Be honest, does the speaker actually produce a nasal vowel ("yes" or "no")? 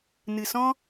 yes